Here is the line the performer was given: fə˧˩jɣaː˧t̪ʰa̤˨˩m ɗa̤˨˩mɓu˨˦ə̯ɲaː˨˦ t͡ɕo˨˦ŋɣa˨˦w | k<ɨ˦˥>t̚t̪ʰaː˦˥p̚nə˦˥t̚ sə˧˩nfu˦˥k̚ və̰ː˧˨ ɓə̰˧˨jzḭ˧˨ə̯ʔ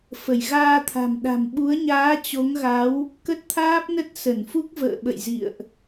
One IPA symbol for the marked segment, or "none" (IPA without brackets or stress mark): ə˦˥